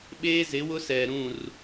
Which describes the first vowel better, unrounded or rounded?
unrounded